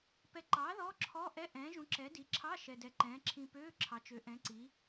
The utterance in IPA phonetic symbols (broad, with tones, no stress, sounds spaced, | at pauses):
p ɛ˨ ǃ ɑː˩˥ ð ɔː˧˥˧ ǁʰ ɔː˧˥˧ ʔ ɛ˧˥˧ ʔ ɛ̃ː˩˥ ʒ ũ˩˥ ǁ ɛ˩˥ d i˩˥ ǁʰ ɑ˧˥˧ ʃ ɛ˨ d ɛ˨ ǃ ɛ̃ː˩˥ ǁʰ ĩ˨ p øː˧˥˧ ǁʰ ɑ˩˥ t͡ʃ ø˩˥ ʔ ɛ̃˩˥ ǀ i˩˥